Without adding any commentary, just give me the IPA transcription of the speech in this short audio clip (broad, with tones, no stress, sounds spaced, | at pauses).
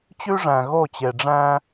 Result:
t͡ɕ ʉ˦ ʐ æ̃˨ ɣ o˦˨ t͡ɕ e˨ ɖ͡ʐ æ̃˦